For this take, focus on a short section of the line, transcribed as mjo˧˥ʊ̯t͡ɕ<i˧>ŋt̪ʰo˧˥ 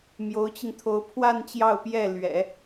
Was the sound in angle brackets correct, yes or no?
yes